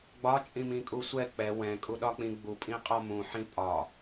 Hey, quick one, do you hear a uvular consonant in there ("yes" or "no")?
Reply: yes